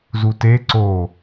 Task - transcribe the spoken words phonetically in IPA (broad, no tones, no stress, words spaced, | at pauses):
zute ǀo